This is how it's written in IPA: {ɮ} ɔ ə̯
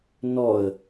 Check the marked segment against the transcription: incorrect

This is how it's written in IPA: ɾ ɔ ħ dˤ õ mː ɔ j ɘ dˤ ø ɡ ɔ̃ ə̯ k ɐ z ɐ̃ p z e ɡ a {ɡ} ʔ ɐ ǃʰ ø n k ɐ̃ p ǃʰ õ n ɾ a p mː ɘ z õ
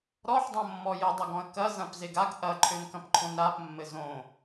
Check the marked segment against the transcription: correct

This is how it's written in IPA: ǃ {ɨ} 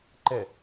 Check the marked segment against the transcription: incorrect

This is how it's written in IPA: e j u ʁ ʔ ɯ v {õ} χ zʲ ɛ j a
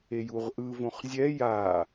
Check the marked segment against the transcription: correct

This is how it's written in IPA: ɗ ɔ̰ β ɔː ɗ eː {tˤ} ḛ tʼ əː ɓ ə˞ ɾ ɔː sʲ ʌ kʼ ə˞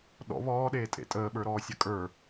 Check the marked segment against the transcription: incorrect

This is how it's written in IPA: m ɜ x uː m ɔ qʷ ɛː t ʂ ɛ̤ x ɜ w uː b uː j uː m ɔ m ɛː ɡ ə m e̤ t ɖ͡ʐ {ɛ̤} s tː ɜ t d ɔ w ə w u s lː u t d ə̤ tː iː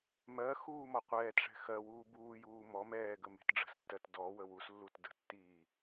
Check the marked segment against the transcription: incorrect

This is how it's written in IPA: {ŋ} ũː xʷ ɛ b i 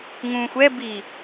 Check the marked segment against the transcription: correct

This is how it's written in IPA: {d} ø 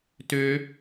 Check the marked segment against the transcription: incorrect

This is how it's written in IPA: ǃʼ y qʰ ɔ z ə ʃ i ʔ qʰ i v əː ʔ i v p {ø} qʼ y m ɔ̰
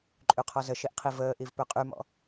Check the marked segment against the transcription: correct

